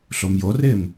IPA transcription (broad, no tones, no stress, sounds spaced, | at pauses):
ɬ o m j o r ɪː m